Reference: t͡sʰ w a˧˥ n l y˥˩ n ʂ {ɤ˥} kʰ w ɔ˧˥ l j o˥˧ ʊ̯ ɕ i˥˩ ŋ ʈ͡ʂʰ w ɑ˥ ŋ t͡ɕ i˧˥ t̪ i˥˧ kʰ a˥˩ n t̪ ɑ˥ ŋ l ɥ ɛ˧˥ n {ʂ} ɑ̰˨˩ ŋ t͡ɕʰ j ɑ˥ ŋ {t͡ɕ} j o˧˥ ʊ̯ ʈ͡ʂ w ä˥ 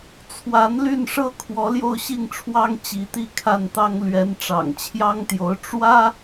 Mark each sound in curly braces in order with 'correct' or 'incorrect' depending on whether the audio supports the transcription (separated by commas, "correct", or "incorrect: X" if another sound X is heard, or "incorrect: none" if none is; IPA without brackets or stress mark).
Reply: correct, incorrect: ʈ͡ʂ, incorrect: t̪